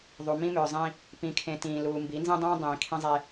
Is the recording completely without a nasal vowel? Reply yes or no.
no